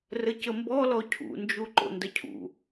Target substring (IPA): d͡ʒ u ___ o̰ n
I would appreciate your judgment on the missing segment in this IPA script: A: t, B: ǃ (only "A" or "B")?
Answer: B